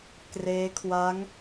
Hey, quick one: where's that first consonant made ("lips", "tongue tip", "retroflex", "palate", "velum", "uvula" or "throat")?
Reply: velum